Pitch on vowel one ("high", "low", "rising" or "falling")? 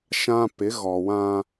high